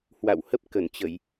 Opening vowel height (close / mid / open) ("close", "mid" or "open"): open